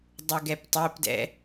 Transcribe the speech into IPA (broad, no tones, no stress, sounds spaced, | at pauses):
dˤ u ɡ ɛ p tˤ e p d ɛ̰